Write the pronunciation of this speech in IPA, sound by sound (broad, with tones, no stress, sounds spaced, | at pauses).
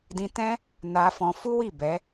d ĩ˧ t ɛ̃˦ | n a˧ f ɔ̃˧ f u˦ w i˦˨ b ɛ˨˦